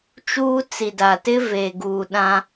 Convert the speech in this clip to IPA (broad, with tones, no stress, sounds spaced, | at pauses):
t͡ʃ uː˦ t͡s i˨ d a˨ t ɪ˦ v e˨ ɡ uː˨ ɗ ã˦